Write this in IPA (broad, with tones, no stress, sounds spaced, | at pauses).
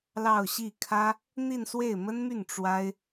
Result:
l ɑ˥˧ ʊ̯ ɕ i˥˩ kʰ ä˥ | n̪ i˥˧ n s w e˥˩ ɪ̯ m ə˥ n m y˥˩ n ʈ͡ʂ w a˥ ɪ̯